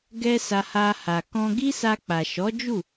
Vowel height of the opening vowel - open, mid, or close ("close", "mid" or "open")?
mid